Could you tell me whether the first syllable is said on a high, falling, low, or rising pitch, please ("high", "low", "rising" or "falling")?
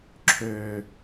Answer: low